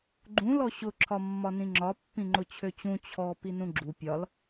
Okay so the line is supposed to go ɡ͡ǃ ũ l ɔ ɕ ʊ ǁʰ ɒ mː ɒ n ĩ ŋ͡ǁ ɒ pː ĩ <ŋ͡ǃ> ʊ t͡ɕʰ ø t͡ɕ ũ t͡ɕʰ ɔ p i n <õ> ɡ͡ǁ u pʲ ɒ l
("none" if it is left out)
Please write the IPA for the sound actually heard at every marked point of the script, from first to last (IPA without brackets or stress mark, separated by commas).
ŋ͡ǃ, ũ